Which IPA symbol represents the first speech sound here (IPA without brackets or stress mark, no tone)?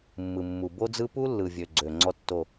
mː